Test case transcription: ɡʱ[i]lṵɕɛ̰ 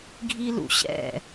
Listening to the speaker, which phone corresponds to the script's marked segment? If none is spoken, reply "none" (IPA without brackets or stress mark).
i